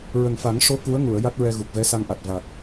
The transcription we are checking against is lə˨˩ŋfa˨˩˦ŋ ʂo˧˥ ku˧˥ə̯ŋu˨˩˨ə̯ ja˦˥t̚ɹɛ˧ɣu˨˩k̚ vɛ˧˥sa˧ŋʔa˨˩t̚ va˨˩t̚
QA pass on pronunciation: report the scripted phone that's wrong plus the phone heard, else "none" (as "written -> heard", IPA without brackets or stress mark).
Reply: l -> ɹ